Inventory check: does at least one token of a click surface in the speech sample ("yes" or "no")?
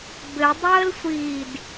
no